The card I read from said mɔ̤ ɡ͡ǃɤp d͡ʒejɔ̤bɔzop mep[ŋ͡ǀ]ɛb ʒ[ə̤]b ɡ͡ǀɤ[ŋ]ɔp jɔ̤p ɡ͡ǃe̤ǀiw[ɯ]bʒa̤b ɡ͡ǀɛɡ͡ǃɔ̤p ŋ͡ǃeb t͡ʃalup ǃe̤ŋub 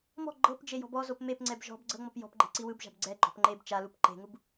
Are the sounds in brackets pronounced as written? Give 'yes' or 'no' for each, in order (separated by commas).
yes, no, no, yes